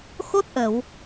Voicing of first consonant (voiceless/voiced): voiceless